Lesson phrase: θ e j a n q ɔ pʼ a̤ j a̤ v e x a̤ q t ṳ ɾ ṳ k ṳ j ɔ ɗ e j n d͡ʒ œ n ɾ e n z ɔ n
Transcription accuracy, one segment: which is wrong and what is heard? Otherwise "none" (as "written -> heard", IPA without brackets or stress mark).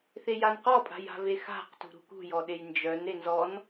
none